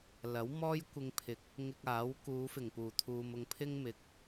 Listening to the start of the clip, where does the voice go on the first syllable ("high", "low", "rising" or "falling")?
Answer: rising